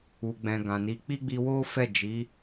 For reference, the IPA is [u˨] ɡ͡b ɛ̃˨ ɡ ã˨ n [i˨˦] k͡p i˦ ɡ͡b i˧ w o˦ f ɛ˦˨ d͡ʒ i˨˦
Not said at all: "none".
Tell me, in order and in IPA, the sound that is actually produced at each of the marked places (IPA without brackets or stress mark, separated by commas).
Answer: u˨, i˨˦